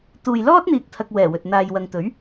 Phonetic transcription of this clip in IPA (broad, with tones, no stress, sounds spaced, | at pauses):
t̪ uː˨ j l ɔː˥ t̚ n̪ iː˨ k̚ t̪ʰ ɐ˧ k̚ w ɛː˨˩ w ɵ˨ t̚ n̪ aː˨ j w ɐ˨ ŋ t̪ ɵ˨˥ ɥ